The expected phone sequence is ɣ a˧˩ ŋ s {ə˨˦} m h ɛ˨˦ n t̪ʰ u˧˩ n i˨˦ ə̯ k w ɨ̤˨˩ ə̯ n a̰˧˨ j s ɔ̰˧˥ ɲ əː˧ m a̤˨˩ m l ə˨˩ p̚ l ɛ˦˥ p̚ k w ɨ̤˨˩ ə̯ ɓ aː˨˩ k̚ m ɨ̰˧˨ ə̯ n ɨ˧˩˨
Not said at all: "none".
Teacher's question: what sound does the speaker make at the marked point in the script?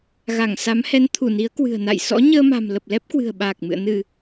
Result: a˨˦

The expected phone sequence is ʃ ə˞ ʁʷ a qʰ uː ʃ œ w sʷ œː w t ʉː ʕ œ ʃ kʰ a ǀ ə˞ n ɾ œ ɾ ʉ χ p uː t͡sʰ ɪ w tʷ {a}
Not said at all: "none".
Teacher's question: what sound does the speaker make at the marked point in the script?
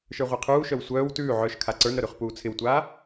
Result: aː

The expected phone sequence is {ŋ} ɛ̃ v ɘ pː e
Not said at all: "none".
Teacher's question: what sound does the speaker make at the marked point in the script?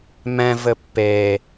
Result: m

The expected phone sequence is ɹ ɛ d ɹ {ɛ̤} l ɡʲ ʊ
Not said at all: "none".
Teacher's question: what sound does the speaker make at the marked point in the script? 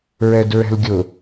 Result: ɛ̤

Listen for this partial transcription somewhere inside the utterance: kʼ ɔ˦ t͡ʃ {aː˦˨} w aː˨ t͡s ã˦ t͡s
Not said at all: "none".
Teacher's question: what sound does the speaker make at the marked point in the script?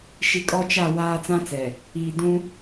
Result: a˦˨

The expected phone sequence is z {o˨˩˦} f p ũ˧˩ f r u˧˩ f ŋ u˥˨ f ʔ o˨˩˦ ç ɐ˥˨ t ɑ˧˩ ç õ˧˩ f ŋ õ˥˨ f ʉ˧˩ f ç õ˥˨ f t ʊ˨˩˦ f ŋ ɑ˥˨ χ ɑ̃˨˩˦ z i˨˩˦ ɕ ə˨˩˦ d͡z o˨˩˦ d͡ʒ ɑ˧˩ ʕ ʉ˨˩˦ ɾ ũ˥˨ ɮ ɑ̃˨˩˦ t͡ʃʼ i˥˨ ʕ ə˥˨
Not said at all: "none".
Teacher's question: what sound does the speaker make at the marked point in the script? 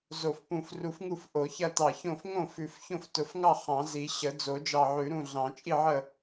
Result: o˧˩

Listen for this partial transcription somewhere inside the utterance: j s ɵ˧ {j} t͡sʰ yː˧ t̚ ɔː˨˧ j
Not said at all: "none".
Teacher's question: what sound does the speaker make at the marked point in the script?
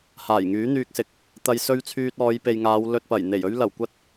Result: ɥ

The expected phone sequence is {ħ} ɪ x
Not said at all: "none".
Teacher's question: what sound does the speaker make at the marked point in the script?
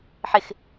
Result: ħ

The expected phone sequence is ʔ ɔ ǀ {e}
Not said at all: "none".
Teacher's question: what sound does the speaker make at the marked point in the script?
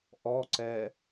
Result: ɛ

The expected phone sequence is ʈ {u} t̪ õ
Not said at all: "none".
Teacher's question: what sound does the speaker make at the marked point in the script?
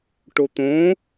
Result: o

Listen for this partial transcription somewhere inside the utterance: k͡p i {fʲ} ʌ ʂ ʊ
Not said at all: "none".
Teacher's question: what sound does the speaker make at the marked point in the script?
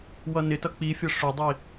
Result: fʲ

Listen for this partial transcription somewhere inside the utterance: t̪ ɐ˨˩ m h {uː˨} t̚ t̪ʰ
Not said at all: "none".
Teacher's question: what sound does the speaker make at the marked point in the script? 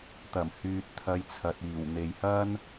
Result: yː˨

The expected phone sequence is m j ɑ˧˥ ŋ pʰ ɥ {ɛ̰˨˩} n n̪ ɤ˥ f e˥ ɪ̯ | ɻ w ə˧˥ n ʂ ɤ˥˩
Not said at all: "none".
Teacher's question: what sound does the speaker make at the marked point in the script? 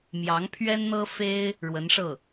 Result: ɛ˥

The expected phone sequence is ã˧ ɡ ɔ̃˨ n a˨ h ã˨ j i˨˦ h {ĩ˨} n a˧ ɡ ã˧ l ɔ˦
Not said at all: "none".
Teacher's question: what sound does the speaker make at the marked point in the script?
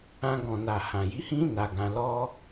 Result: ĩ˦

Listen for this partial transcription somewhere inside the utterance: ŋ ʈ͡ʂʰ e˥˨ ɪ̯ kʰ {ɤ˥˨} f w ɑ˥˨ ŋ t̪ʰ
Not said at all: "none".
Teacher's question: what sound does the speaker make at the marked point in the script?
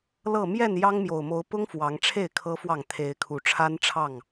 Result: ɤ˦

